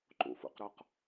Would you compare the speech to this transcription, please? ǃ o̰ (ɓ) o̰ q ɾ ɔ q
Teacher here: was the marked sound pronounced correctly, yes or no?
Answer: no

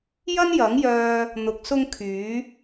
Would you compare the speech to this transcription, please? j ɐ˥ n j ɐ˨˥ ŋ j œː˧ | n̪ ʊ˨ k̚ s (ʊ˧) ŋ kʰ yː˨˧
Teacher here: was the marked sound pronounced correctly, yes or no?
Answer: yes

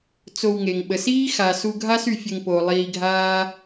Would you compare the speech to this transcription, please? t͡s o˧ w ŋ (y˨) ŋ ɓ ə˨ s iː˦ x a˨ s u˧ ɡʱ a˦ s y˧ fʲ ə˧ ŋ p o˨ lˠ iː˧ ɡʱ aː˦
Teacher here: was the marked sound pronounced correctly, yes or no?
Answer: no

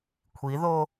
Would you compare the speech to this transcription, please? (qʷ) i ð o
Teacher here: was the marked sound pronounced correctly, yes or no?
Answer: no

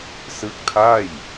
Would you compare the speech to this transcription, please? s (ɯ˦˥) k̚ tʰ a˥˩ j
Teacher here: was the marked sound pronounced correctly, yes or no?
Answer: yes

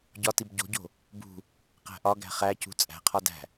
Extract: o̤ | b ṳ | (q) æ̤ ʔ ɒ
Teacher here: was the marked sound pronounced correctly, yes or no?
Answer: yes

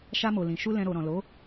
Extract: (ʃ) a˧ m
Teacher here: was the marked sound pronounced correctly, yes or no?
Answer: yes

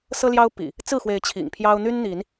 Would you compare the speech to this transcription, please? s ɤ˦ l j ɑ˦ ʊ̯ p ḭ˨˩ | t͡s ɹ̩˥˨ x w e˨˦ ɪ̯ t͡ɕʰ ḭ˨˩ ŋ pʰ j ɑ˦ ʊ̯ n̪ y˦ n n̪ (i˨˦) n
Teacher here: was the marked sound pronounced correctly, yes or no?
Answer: yes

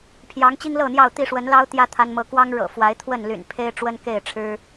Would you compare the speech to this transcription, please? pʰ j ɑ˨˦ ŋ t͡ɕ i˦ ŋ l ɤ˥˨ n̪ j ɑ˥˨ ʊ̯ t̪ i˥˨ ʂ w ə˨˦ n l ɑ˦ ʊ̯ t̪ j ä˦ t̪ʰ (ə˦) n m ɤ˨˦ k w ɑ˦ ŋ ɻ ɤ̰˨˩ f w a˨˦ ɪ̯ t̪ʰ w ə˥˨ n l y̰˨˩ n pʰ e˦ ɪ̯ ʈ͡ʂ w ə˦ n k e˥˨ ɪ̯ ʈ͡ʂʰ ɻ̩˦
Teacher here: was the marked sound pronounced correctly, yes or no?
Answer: no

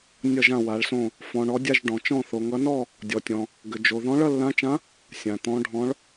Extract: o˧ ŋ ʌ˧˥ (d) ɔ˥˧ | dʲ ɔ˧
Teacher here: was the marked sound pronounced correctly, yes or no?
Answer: no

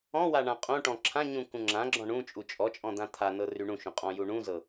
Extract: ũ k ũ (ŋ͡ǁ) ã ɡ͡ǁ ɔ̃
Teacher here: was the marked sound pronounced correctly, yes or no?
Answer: yes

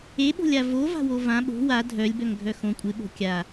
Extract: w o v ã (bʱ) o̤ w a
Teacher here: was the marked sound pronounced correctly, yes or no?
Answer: no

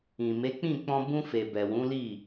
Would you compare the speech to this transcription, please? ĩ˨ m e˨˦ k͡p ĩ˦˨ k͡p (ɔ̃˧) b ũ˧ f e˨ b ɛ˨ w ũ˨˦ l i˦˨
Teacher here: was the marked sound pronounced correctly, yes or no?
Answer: yes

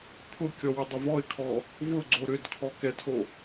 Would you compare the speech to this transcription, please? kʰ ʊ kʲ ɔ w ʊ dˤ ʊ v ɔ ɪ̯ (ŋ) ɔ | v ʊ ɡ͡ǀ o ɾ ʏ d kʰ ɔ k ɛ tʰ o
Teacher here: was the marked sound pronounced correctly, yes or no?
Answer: no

